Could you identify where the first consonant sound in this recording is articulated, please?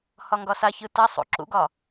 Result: glottal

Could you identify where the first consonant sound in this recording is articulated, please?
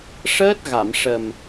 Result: retroflex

